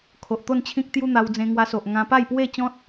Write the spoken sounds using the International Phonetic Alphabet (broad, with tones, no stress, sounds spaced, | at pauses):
kʰ o˨ ʔ t̪ o˥˧ n t͡ɕʰ ĩ˦ k̚ t̪ j u˦ n̪ a˧ w d͡z ẽ˧ ŋ w a˧ s o˨ ʔ ŋ ã˧ p a˥˧ j p w e˥˧ t͡ɕ ɔ̃˦ t̚